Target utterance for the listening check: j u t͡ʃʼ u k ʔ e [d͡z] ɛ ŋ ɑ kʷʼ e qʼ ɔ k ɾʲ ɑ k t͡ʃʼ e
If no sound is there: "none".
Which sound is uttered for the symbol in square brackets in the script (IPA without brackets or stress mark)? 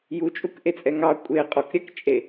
t͡sʼ